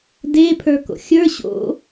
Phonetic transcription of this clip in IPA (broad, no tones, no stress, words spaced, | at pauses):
de pʰə˞ko̰xʲə˞ ɕo̰